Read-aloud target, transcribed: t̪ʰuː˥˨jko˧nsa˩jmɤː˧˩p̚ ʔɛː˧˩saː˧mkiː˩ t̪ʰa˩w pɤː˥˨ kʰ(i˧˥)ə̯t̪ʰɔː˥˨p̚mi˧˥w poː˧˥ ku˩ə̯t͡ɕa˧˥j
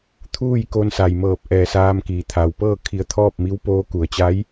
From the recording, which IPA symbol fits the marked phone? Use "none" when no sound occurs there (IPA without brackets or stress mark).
i˧